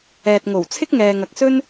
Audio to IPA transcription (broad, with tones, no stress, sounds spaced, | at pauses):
ɛː˨ t̚ ŋ o˨˩ w t͡sʰ ɪ˥ k̚ ŋ ɛː˨ ŋ ɐ˨ k̚ s ɵ˥ n